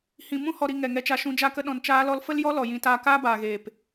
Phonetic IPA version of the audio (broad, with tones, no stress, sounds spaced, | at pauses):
h ĩ˨ m ũ˦ h ɔ˨ ɾ i˨ ŋ ɛ˨ ŋ ɛ˧ t͡ʃ a˧ ʃ ũ˧ d͡ʒ a˧ k ə˧ ɗ ɔ̃˨ n t͡ʃ aː˧ l ɔ˧ l f ə˦ l j ɔ˦ l ɔ˨ j ĩ˨˦ t aː˧ k aː˦ b aː˨ ɣ eː˨ p